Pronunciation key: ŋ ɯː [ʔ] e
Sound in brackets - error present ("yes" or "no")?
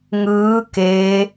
yes